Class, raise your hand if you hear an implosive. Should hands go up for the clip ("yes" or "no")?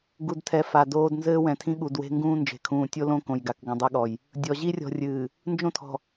yes